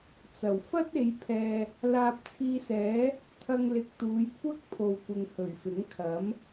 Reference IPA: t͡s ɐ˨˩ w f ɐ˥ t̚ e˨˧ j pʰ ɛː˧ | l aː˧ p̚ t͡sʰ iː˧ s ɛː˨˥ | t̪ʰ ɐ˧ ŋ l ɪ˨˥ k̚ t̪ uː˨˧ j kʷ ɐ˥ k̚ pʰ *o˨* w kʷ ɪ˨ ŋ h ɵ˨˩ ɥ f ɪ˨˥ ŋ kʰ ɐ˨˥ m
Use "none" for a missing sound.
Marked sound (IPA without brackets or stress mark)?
o˨